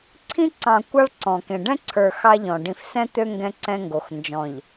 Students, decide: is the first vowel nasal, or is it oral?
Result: nasal